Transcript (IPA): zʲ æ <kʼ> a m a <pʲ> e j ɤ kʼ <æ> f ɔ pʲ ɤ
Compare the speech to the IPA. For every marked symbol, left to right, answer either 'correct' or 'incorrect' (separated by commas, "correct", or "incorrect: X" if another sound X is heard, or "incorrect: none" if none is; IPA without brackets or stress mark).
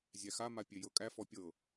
incorrect: x, correct, correct